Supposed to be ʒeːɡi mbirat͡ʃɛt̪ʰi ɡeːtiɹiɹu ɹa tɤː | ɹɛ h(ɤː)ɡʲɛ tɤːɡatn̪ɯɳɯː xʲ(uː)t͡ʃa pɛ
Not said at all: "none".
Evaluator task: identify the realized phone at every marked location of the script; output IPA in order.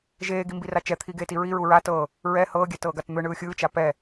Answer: ɤː, ɯː

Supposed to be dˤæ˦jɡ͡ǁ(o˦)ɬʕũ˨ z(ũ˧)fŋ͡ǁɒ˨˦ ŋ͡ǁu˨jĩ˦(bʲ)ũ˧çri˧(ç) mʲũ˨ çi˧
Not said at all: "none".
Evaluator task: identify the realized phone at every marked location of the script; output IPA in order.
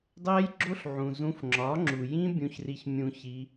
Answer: o˦, ũ˧, bʲ, ç

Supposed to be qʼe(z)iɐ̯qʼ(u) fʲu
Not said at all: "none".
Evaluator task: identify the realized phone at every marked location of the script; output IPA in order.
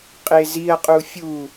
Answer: z, u

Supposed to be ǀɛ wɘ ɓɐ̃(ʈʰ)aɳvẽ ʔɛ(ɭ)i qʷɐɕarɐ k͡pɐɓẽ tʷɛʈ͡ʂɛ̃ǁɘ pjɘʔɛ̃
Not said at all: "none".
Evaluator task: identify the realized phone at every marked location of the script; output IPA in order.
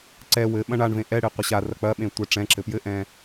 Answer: ɳ, ɽ

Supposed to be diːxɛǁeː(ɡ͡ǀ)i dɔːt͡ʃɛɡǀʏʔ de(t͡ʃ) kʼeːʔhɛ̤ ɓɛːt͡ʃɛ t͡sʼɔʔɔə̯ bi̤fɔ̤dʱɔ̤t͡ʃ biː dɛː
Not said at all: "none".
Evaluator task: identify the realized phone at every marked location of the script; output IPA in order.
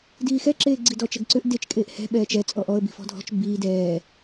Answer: ɡ͡ǀ, t͡ʃ

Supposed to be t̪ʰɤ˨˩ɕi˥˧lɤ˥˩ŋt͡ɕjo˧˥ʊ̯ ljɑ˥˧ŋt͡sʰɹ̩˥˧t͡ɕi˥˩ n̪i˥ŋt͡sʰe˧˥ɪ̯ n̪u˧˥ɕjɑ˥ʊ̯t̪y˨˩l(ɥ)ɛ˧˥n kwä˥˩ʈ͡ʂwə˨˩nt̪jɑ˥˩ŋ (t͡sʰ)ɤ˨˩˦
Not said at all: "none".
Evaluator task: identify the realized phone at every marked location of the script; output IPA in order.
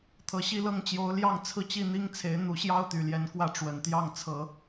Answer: j, t͡sʰ

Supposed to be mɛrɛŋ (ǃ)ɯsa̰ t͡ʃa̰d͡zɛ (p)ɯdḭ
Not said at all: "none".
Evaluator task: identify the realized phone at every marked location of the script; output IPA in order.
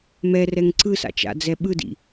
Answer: ǀ, ɓ

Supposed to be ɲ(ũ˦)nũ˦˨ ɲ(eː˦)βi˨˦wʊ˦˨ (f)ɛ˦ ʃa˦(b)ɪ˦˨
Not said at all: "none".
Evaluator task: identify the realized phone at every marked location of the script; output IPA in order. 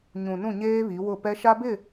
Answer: ũ˨, eː˦, p, b

